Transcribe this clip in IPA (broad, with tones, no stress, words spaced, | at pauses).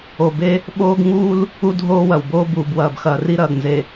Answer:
o˨be˦ | ɓoː˦ɡ ŋuː˦l | u˦dʱoː˦wɐ˨wboː˦ buː˨bwɐː˨b xɐː˨ ri˦ɾɐː˨ɡnze˨